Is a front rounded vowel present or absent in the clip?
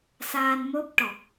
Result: absent